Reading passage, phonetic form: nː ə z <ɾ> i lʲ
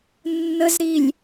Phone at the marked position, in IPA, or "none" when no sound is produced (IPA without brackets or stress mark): ɾ